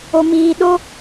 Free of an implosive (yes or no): no